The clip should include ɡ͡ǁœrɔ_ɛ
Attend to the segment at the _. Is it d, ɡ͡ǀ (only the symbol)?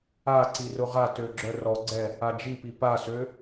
ɡ͡ǀ